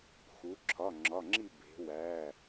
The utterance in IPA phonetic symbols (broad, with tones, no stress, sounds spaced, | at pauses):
x u˩˧ ǁʰ ɒ˩˧˩ ŋ͡ǁ ɒ˩˧˩ ŋ͡ǁ i˥˨ b e̤˩˧ w æ˩˧˩